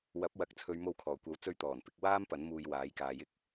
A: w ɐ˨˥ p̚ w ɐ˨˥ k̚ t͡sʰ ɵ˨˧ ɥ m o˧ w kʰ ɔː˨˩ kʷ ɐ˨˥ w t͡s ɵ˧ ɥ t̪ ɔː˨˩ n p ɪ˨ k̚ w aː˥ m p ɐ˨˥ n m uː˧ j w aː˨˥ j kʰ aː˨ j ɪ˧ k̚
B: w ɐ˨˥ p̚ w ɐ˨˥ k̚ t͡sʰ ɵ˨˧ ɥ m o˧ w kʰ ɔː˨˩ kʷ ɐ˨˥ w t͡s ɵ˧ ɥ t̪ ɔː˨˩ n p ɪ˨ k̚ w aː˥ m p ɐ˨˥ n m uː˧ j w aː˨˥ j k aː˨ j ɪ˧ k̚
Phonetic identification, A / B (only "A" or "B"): B